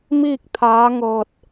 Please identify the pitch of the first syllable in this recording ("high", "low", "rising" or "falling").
falling